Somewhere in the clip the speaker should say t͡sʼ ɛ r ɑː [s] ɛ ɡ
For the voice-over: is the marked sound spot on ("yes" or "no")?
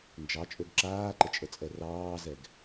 no